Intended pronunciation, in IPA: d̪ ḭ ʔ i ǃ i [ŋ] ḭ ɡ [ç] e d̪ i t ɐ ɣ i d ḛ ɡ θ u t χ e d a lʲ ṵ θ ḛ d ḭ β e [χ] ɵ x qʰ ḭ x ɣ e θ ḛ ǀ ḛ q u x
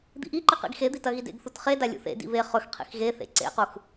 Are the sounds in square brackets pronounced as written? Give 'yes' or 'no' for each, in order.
no, no, yes

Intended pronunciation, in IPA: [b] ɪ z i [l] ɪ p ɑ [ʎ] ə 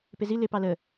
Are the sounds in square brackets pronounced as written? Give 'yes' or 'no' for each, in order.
no, yes, no

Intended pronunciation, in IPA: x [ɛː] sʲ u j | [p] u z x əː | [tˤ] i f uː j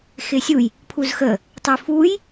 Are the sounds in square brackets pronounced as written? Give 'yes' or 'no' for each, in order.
no, no, yes

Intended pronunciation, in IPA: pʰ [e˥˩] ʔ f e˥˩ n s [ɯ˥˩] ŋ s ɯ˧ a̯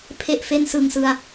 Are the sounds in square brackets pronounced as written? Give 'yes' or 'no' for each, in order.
yes, no

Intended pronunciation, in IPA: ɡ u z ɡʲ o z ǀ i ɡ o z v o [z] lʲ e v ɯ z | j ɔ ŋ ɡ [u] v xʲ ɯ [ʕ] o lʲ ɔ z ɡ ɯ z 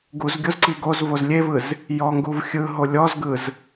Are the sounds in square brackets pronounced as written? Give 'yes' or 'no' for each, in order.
yes, yes, no

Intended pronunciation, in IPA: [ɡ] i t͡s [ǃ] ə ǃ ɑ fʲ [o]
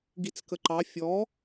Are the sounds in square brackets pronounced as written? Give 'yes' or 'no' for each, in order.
yes, no, no

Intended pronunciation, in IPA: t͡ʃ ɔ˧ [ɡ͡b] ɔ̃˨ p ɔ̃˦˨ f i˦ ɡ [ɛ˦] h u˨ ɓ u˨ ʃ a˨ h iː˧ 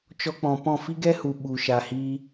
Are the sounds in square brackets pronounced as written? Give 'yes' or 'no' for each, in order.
no, yes

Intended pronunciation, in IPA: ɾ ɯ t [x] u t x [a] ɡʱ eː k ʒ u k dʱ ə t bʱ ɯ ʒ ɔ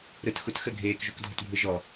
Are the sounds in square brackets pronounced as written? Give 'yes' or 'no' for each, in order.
yes, no

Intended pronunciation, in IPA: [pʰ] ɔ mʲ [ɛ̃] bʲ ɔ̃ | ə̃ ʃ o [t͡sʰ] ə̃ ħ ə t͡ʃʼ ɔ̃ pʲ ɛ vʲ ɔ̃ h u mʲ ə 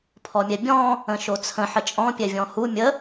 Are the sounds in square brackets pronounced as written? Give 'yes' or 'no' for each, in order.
yes, no, yes

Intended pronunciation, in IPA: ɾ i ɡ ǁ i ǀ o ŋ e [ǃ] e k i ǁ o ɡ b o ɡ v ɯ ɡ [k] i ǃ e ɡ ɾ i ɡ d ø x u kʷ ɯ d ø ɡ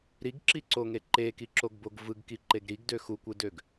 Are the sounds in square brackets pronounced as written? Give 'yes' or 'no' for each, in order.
yes, yes

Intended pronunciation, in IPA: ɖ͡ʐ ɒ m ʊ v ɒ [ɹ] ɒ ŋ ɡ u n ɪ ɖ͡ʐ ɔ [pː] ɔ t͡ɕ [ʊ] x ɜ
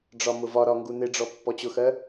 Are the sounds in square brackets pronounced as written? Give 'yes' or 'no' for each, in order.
no, yes, yes

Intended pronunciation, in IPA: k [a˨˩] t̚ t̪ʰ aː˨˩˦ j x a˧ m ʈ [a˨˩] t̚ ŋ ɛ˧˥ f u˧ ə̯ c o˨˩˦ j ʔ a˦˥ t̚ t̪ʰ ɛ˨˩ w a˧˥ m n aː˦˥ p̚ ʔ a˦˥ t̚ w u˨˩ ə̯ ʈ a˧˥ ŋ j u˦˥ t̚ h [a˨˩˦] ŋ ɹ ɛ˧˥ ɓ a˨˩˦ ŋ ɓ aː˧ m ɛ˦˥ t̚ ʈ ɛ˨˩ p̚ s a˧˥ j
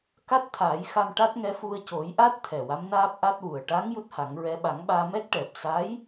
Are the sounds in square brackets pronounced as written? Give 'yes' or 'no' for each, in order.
no, no, yes

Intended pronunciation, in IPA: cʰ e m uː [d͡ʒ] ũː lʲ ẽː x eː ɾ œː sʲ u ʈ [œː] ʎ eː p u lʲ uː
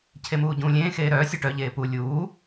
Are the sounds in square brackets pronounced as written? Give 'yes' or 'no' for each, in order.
no, no

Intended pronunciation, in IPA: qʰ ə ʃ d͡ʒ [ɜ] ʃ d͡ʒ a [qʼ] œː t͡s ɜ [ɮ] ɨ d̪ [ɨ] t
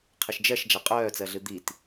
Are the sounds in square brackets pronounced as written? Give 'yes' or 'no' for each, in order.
yes, yes, yes, no

